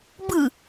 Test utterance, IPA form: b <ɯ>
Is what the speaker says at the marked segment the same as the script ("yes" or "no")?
yes